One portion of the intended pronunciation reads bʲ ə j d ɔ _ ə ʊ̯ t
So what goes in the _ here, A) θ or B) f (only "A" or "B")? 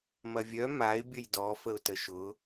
B